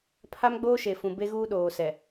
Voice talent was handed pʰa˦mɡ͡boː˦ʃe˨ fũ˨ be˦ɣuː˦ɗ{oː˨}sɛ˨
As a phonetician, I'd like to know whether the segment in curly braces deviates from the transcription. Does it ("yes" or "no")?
no